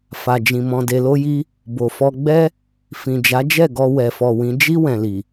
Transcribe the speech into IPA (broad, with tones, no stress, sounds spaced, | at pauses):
f a˨ d͡ʒ ĩ˨ m ɔ̃˧ d e˧ l o˦ j i˦ | b o˨ f ɔ˧ ɡ͡b ɛ˦ | f ĩ˨ d͡ʒ a˨˦ d͡ʒ ɛ˦˨ ɡ ɔ˧ w ɛ˨ f ɔ˨ w ĩ˨˦ d͡ʒ i˦ w ɛ̃˧ l i˨